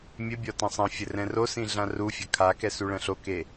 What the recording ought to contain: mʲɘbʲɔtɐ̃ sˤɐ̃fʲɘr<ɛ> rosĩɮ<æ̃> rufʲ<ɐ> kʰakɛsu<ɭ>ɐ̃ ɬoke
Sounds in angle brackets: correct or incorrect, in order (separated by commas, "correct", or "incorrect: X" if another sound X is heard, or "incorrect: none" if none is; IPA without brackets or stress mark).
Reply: incorrect: ɛ̃, incorrect: ã, correct, correct